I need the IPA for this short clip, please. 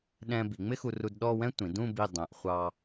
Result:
ɗɛ̃˧ bi˩˧ŋ͡mɪ˥xu˧ru˧d ɗɔ˥˧ wɛ̃˥tʷĩ˩˧dũ˥˧ bi˧˩dˤæ̃˩˧ʔ χʷɑ˧

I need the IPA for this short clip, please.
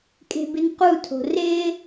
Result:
kʼe̤bɪnqutʰo̤ rɪ

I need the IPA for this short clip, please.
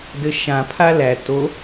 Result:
dɘʃã pʰalæ to

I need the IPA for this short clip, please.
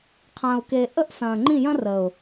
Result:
qʰɐ̃ː˨ʊ̯ke˨ ʔə˦ʔ sɐ̃ː˨ŋ͡ǃĩ˦˨jɐ̃˦rə˨ʊ̯

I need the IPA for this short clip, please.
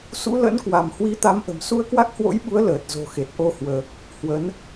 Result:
sṵ˧˥lə̰˧˥nkwa˧˩m hwi˨˦t̪a˨˦mʔə̤˨˩m su˧ə̯kwa˦˥k̚hwo̰˧˥jɓu˨˦ə̯ ləː˨˩t̚zo̤˨˩xe˨˩t̚ ʔo˧hwəː˨˩k̚ | hwə˨˦n

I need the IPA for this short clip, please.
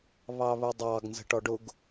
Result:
βɑβʊdˤɑɡ nzə̤ʈɔɖʊɡ

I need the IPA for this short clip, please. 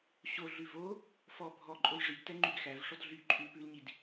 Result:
ɕo ɮʉvo | fɔ bʱɔǃʼoj ʐiɡtɛ ŋ͡ǃyɡxæv ʂɔdɮy ǃʼʉlpʉlɲid

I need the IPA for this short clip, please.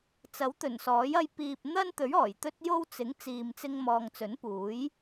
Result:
t͡sɐ˨˥wt̪ɵ˨˩nsɔː˨˥j ɐ˧j piː˨p̚n̪ɐ˥nt̪ɵ˨˥ɥ ɔː˨˩jt̪ɵ˥t̚jo˥w t͡sɪ˨˥ŋ t͡siː˧mt͡sɪ˥ŋmɔː˧ŋ t͡sɵ˨˥npuː˨˥j

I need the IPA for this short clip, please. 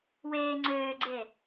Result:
weː ŋ͡ǀøːɡ͡ǀe

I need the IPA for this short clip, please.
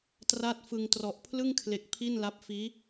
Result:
tra˦˥t̚fɯ˧ŋ trɔ˨˩ʔpʰlɯ˥˩ŋkʰle˨˩k̚ pʰi˥˩nla˦˥p̚ fiː˦˥

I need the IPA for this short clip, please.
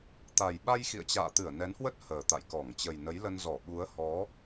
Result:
t̪a˨˩jɓa˧j xḭ˧˨ə̯t͡ɕa̰ː˧˨t̪ɨ˧˩ə̯ nɛ˨˦nhwə˦˥t̚ həː˨˩t̪a̰˧˨jkɔ˧˩ŋ t͡ɕə˨˩jnə˨˦jlə˧n zɔ˧˩ɓu˨˦ə̯hɔ˨˦

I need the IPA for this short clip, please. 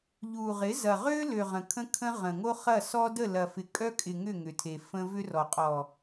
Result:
ʎu˨ʁɪ˨˦ zɐ˨ʁø˦lø˨ ʁə̃˨kʰə̃˦kʰə̃˦ ʁə̃˨ŋo˦ χɐ˦˨sɔ˦ də˦˨lɐ˨fɪ˨ kʼœ˦kʼɪ˨ ŋʏ˦˨ŋʏ˨tʰe˨ fə̃˦ vʏ˦rɔ˨ qʼɔ˨

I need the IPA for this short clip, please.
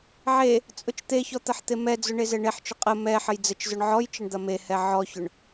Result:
ʕe | t͡sʼʊt͡ʃt̪eçɔ t̪ɐħt̪emɛd͡zʊ ɳezɛɳeħt͡ʃʊ qʼə mɛ ħəjd͡zət͡ʃzʊɳ ʕɔjt͡ʃəɳ d̪ɐmehɛ ʕɔçʊɳ

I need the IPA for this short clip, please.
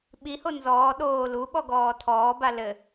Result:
ɓiho nzɔː ɗoː luɓɔ ɡɔːtʰɔːba lɘ

